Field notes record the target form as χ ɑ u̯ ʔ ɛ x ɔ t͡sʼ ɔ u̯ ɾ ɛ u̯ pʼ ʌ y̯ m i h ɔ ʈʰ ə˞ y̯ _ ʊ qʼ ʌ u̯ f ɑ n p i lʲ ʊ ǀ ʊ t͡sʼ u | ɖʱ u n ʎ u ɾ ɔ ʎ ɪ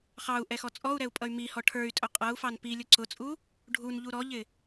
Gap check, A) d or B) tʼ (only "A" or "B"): B